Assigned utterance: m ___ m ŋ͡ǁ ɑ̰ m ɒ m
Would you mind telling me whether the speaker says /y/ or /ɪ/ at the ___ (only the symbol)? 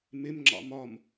ɪ